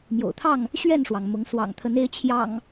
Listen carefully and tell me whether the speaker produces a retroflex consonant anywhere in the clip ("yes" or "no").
yes